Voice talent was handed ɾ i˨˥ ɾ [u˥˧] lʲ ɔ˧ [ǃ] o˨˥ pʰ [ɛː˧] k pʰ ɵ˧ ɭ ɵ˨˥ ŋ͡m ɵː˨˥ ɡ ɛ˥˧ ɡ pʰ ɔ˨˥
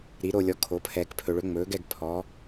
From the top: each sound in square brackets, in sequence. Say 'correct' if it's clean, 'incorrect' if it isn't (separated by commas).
incorrect, incorrect, correct